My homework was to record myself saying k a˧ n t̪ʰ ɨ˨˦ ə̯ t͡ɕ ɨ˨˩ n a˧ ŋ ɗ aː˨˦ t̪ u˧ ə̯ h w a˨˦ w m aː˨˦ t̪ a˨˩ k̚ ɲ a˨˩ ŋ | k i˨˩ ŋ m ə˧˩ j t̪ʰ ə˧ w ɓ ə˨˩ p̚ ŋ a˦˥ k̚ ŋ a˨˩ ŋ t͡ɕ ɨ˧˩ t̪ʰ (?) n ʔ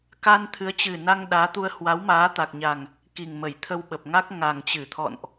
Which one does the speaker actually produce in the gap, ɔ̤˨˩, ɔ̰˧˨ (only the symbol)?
ɔ̰˧˨